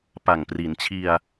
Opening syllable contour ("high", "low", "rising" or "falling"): low